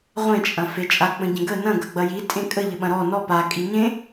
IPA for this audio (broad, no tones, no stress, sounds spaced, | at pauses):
ʁʷ ẽ t͡ʃʼ ɐ̃ f e t͡ʃʼ a k͡p ə̃ ɟ ə̃ ɡ ə n ɐ̃ ɡ ɐ ɡ͡b ɐ j i tʼ ẽ kʼ ə ʎ ə ɓ ɐ̃ ɾ ɔ n ɔ p a kʼ i ɲ ẽ